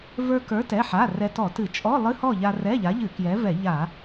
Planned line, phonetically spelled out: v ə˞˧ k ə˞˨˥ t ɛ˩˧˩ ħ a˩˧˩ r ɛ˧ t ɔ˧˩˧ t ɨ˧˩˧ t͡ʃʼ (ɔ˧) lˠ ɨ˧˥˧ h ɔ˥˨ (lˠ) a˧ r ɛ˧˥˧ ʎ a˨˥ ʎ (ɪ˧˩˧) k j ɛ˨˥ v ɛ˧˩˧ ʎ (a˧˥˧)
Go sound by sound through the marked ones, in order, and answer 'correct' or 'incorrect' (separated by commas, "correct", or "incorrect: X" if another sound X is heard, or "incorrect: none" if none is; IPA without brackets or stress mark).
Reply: incorrect: ɔ˧˥˧, incorrect: ʎ, incorrect: ɨ˧˩˧, incorrect: a˧˩˧